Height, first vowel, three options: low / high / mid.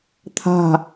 low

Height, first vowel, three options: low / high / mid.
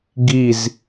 high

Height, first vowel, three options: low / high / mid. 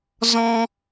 mid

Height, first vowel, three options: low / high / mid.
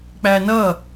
low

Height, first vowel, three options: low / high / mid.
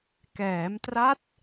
mid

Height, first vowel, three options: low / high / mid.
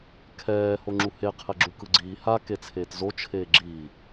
mid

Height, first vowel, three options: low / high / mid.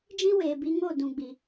high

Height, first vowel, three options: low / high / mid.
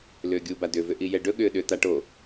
high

